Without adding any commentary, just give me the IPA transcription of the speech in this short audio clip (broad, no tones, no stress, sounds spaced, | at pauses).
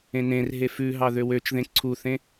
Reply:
ẽ n ẽ r ɦ e f ʉ ɦ ɑ ð ø w ø t͡ʃ ð ẽ ǀʰ u θ ẽ